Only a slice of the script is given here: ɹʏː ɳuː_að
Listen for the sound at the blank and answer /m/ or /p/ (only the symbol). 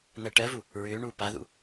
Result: p